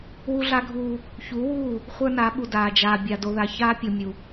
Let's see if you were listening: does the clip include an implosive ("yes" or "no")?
yes